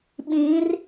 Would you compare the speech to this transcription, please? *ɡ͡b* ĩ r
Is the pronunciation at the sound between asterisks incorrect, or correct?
incorrect: ɓ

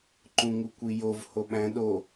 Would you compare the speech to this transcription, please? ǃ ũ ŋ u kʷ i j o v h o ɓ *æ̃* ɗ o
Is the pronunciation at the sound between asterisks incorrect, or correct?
correct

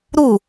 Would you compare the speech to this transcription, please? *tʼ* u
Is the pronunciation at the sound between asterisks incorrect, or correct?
incorrect: ɾ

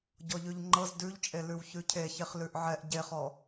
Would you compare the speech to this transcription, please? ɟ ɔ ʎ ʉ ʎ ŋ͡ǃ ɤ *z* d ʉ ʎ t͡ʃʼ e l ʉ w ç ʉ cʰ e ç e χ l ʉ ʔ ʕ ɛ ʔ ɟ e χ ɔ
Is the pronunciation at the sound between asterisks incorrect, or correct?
correct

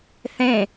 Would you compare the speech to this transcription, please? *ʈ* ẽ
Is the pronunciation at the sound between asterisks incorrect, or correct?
incorrect: θ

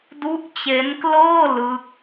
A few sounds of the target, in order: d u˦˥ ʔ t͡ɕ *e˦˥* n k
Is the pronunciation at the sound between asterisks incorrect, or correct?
correct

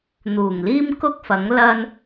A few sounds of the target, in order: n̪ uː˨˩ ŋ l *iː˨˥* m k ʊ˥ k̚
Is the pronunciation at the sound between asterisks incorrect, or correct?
incorrect: iː˥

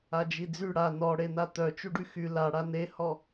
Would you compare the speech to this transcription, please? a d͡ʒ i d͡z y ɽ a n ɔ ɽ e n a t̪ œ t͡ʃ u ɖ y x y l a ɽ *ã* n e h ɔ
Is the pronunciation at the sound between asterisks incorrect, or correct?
incorrect: a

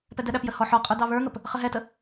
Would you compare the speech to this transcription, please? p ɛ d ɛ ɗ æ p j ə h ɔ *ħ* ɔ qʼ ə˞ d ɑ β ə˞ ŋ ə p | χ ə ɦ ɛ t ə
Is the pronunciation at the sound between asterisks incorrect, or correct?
correct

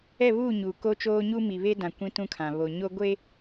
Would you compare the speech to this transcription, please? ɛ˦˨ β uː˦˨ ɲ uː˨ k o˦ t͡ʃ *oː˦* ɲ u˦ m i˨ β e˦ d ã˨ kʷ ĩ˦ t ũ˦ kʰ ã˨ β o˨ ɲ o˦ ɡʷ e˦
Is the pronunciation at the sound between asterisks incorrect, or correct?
correct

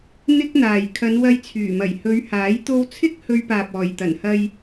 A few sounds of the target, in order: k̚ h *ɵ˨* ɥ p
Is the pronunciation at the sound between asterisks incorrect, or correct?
incorrect: ɵ˧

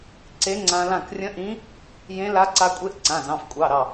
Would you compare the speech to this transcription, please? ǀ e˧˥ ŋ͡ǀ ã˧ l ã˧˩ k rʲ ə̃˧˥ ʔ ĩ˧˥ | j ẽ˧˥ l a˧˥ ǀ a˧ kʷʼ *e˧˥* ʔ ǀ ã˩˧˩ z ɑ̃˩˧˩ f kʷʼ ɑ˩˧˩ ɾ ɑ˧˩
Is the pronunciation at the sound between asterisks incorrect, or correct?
correct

